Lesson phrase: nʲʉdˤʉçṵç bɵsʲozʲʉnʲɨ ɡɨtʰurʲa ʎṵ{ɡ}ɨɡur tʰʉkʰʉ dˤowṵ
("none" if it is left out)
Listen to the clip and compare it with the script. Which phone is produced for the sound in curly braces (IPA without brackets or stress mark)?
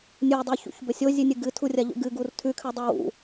ɡ